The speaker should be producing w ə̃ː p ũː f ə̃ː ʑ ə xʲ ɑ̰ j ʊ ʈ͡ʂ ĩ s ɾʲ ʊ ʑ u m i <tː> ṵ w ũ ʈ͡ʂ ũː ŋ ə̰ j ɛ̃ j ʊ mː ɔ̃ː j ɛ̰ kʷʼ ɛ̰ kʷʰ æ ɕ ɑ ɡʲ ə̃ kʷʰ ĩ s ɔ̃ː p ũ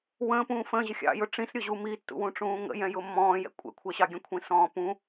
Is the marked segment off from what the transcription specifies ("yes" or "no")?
no